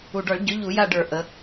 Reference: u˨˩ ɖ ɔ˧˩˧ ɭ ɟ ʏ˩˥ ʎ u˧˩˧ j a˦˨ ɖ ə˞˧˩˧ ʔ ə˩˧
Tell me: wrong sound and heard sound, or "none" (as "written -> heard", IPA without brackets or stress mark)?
none